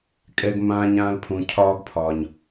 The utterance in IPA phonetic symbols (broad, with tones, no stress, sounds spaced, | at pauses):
kʼ ɛ˦ ɡ m ãː˦ ɲ ãː˦ l pʰ ũ˨ cʰ ɒː˦ ɡ pʰ ɒː˨ ɲ